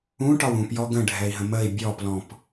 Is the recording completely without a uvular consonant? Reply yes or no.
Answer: yes